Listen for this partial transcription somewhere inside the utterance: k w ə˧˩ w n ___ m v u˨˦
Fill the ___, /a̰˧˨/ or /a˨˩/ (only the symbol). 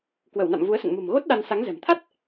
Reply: a̰˧˨